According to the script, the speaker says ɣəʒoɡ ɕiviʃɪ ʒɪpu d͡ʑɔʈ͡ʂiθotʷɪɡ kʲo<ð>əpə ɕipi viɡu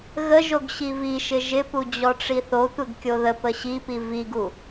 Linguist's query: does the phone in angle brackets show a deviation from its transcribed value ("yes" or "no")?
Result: no